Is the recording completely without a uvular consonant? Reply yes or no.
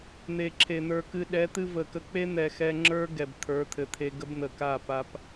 yes